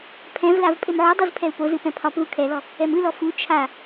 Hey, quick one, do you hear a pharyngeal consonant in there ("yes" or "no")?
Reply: yes